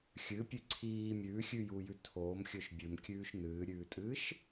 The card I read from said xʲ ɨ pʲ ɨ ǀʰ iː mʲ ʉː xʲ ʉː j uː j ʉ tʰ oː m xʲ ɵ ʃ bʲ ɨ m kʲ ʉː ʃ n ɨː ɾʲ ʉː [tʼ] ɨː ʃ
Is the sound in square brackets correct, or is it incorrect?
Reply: correct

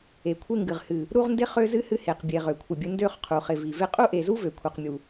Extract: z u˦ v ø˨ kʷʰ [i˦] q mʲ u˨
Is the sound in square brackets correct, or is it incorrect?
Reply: incorrect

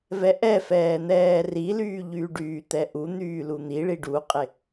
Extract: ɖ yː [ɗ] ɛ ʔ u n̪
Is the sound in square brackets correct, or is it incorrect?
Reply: incorrect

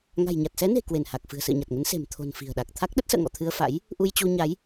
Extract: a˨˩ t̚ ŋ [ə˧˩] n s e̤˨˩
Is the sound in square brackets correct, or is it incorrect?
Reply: incorrect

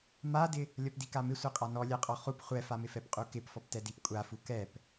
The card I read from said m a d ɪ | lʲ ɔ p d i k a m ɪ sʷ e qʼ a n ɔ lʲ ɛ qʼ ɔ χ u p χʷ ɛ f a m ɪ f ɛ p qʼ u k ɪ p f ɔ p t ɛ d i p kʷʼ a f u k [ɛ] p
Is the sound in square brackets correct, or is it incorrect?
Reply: correct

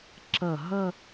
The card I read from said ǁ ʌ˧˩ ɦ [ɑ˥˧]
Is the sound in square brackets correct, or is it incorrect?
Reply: incorrect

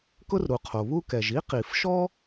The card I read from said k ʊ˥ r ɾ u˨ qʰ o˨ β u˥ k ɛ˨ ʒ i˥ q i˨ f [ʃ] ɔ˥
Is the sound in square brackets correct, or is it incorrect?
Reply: correct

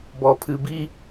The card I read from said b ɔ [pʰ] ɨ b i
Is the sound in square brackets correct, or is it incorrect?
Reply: correct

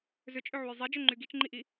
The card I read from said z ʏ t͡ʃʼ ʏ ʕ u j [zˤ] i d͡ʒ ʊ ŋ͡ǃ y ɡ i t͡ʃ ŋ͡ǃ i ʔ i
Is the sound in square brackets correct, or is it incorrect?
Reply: correct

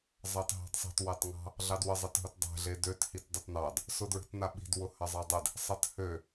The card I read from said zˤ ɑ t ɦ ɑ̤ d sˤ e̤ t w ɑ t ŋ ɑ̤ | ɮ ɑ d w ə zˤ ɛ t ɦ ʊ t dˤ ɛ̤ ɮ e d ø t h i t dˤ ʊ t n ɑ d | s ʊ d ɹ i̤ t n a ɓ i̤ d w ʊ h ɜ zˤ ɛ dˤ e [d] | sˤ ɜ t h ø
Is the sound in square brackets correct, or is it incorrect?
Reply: correct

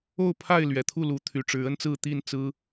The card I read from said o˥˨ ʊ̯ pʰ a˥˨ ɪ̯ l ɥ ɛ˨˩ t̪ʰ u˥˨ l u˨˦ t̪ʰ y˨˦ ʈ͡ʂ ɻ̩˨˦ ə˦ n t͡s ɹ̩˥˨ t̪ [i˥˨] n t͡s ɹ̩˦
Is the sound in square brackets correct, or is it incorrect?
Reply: correct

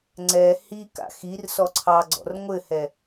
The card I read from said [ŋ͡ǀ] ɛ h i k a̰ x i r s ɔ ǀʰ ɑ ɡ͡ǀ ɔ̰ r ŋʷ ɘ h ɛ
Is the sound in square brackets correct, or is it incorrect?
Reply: correct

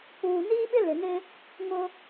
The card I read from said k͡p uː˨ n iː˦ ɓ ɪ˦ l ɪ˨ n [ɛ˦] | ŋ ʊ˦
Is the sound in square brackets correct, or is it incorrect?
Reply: incorrect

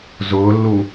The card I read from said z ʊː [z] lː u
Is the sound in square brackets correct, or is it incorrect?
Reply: incorrect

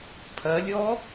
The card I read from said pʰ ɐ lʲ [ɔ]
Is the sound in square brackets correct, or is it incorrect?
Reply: correct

